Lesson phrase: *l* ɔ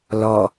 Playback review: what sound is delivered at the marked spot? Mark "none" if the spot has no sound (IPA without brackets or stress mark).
l